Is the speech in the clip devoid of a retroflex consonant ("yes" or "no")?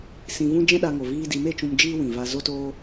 yes